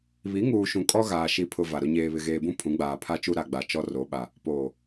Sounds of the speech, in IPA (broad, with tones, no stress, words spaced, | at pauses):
βi˨˦ŋuː˨ʃũ˨ kʼɔ˦ɣaː˨ ʃi˨pʰʊ˨ va˨ɾʊ˦ ɲeː˨βɪ˨ɣeː˨bũ˦ pʰũ˨˦ɡ͡baː˨pʰa˦t͡ʃu˦ ɾa˨ɡ͡ba˨ t͡ʃɔ˦ro˨˦ɓa˨ | poː˨